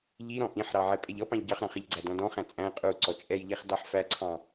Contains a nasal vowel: yes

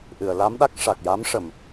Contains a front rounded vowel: no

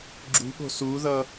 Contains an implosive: yes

